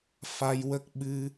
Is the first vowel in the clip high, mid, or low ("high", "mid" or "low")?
low